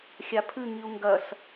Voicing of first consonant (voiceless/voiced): voiceless